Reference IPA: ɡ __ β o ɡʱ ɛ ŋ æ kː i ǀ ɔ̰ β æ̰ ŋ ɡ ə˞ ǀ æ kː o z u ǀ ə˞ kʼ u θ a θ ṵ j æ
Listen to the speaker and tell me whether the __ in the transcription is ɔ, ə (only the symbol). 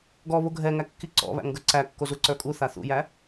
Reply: ɔ